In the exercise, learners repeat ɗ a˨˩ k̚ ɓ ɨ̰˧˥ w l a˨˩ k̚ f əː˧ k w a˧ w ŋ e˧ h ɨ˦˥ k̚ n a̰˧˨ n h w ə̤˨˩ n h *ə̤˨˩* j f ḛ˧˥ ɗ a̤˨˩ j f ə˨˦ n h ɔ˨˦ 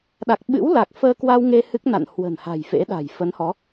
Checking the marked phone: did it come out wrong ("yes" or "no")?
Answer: yes